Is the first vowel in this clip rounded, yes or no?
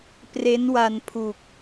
no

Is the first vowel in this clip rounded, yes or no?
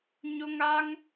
yes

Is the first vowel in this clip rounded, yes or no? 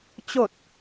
yes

